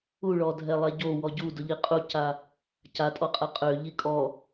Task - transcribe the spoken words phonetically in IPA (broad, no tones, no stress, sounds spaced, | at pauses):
u ɭ ɔ dʱ ɛ lˠ ɛ ɟ o w ɔ ɟ u d ʊ ʎ i qʼ u c a | c a tʼ ɔ qʼ ɛ qʼ ø ʎ i kʼ ɔ